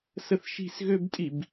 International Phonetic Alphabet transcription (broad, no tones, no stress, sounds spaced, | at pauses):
s ə θ ʃ i̤ s ɣ ø b tʼ i b